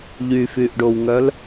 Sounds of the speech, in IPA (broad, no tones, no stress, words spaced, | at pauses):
ʎyfyʔɖowŋœl